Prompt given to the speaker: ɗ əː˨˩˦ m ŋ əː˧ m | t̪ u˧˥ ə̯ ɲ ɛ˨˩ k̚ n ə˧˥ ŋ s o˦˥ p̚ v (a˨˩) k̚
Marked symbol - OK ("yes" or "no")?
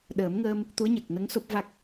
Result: no